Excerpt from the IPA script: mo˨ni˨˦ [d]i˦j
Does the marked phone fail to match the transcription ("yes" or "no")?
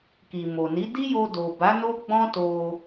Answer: no